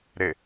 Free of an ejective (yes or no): yes